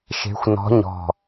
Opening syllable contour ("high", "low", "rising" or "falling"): rising